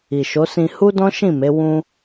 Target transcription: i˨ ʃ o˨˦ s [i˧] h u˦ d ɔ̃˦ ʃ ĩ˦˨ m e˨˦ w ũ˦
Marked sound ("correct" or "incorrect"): incorrect